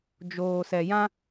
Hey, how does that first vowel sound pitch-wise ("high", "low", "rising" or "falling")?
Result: low